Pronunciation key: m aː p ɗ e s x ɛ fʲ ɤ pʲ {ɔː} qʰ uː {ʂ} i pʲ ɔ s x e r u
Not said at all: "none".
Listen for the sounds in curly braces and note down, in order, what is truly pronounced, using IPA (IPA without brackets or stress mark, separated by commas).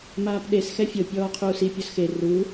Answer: ɔː, s